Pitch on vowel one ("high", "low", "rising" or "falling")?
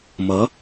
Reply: rising